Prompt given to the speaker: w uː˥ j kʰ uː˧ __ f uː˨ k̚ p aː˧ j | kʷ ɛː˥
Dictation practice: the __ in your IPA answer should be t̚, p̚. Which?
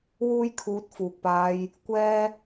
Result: t̚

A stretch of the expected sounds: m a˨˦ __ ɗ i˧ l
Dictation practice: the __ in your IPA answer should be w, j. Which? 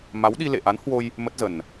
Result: w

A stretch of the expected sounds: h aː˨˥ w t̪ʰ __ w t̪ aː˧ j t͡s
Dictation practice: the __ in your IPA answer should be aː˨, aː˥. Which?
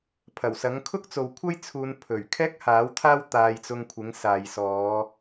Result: aː˥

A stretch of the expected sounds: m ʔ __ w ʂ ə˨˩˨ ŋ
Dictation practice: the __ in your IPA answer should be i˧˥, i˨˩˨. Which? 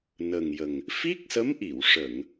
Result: i˨˩˨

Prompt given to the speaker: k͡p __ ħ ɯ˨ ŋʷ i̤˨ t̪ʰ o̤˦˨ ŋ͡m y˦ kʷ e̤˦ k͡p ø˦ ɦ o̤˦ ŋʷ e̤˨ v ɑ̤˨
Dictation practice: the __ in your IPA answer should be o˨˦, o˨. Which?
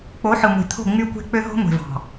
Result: o˨˦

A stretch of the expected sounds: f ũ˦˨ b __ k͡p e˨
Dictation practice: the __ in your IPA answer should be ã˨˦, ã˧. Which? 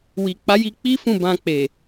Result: ã˧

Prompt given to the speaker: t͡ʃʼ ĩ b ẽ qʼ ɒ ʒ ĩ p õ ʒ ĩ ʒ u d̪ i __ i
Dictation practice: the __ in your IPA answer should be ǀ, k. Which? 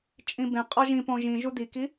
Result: k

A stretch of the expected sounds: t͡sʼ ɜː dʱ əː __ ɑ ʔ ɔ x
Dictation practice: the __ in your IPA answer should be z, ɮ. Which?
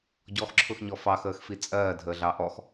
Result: ɮ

